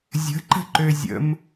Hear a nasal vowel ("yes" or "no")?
no